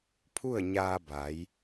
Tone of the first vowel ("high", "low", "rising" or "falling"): falling